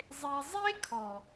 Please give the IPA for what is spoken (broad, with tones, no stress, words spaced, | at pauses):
zˤe˧ zˤe˦kʰɔ˨